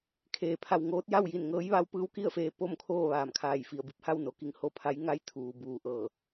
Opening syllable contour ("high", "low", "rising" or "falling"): low